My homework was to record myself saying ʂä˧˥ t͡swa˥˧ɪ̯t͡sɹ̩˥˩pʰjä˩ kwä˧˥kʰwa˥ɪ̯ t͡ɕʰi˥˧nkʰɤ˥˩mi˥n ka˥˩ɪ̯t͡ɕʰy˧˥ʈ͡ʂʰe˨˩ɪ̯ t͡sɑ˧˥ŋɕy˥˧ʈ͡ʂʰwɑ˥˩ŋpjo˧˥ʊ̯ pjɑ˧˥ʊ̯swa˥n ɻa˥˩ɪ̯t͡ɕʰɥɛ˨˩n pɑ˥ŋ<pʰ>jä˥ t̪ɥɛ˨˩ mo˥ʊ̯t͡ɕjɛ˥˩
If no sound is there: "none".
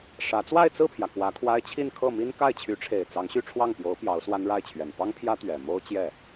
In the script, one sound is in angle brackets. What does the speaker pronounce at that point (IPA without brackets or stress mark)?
pʰ